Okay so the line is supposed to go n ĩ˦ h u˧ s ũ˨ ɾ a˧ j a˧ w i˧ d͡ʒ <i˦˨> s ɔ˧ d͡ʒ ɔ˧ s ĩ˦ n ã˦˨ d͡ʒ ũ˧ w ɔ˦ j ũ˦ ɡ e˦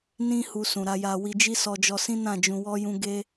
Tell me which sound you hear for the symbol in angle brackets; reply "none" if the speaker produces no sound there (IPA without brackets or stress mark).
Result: i˦